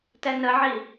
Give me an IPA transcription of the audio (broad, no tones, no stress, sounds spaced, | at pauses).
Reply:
t ɛ n ə ʕ i